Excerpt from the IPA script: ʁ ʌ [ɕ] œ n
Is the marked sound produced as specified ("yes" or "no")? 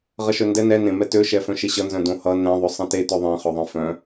no